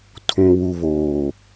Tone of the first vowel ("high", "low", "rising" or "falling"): low